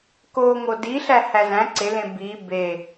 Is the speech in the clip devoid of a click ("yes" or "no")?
no